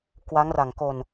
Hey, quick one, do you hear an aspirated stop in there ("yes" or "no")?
no